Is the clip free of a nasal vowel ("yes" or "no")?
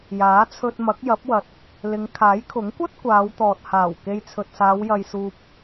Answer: yes